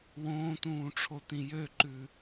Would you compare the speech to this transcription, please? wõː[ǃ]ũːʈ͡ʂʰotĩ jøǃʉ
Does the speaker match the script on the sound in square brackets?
no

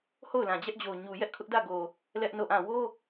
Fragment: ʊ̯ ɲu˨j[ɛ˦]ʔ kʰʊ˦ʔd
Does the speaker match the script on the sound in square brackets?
yes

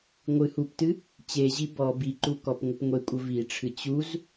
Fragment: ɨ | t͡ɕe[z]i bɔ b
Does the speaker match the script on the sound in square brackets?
no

